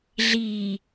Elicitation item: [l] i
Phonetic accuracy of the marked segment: incorrect: ɮ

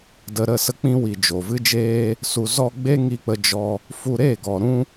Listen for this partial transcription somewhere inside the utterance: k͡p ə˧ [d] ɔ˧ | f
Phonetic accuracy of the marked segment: incorrect: d͡ʒ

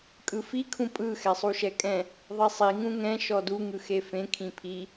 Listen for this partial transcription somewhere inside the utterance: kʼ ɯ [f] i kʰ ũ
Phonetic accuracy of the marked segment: correct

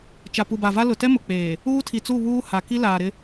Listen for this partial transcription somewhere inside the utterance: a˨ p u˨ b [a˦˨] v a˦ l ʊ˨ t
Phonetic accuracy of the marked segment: incorrect: a˨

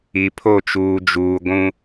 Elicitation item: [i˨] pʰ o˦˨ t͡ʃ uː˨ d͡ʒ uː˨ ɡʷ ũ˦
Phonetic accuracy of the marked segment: correct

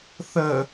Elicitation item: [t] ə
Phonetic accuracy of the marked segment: incorrect: θ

